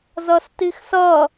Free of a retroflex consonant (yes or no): yes